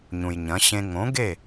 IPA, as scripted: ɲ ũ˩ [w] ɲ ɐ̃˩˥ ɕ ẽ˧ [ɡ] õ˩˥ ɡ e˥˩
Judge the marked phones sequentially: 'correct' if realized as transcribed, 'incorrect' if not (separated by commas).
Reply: incorrect, incorrect